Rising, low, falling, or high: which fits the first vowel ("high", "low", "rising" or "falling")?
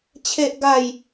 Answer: low